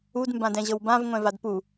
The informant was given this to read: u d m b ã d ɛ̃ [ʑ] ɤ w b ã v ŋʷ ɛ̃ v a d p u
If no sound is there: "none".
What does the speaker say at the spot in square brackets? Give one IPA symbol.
ʑ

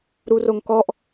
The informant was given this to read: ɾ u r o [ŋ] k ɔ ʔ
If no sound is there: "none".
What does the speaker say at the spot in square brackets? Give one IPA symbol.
ŋ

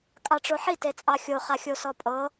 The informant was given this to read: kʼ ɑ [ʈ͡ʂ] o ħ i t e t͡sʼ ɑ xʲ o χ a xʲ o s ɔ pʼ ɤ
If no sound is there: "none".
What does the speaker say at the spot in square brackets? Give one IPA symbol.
ʈ͡ʂ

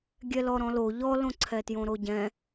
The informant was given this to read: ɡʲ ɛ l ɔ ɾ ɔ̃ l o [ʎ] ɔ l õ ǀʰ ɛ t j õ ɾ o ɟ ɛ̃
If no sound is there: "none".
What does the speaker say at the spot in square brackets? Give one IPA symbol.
ʎ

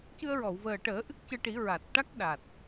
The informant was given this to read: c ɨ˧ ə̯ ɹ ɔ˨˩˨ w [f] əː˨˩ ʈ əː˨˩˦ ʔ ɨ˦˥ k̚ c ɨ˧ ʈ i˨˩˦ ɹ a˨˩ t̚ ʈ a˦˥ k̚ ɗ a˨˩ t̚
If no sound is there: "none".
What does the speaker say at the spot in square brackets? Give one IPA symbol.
v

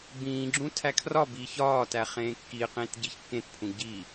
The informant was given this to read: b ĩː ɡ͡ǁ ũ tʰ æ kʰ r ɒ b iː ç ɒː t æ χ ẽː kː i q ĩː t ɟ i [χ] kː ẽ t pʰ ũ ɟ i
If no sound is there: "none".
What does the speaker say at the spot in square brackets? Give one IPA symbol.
ç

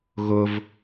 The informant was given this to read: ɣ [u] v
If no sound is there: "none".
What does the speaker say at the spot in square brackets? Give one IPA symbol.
ʊ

